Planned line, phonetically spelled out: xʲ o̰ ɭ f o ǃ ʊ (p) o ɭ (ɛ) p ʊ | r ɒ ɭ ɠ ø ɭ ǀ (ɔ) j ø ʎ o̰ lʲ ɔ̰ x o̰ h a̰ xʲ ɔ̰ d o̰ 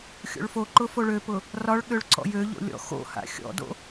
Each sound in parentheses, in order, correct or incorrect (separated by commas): incorrect, incorrect, incorrect